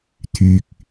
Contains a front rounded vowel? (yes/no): yes